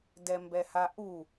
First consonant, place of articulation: alveolar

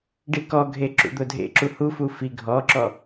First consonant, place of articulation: retroflex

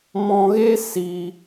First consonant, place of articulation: labial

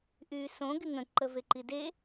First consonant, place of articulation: glottal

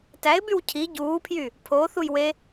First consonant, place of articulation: alveolar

